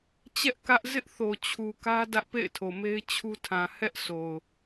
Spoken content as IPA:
t͡ɕɛ˦ʔ kä˦ʔ zɪ˦ʔθo˨ t͡ɕʰu˨kä˦ dä˦ʔpḛ˦˨ɪ̯tʰo˨me˦ɪ̯ t͡ɕʰu˦tʰã˨ hɛ˦ʔso˨ʊ̯

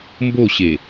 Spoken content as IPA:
mboɕe

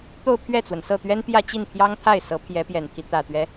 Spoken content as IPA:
t̪o˥˧ʊ̯pʰɥɛ˥˩t͡swə˩n sɤ˥˩t̪ɥɛ˥n pjä˥˧t͡ɕi˥˩npʰjɑ˥ŋt̪ʰa˥˩ɪ̯ sɤ˧˥pʰjɛ˧˥pjɛ˨˩nt̪ʰi˦ t̪ä˨˩t̪ɥɛ˦

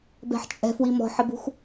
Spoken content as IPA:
bɛ̤ħt͡ʃʼɛ̤fwi mɔ̤ħɪbṳx

